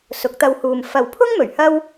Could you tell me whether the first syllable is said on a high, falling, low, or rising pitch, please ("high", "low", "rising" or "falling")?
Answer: rising